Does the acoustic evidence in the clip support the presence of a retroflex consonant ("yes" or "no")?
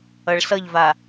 yes